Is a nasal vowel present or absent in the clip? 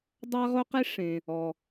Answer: present